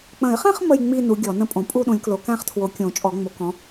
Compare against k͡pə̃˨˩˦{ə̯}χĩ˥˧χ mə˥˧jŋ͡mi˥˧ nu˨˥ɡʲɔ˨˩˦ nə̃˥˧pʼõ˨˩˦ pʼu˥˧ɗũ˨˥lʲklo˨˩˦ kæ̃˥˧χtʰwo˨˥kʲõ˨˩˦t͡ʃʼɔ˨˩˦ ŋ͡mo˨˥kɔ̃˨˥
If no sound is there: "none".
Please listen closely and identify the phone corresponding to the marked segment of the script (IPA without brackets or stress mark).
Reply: ɪ̯